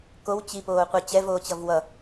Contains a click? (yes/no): no